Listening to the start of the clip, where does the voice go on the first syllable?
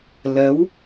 rising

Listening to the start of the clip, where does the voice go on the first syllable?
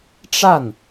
falling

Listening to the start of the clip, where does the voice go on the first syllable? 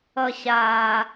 low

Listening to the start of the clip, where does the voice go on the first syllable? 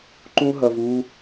high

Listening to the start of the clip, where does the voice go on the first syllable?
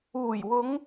low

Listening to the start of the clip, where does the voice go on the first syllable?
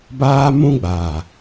high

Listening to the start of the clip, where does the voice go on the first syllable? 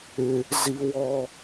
high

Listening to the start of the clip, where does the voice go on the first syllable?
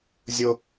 low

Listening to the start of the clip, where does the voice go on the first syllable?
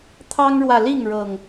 high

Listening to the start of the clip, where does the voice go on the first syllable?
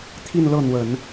falling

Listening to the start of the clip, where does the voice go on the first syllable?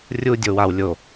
high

